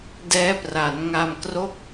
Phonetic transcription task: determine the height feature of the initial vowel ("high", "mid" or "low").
mid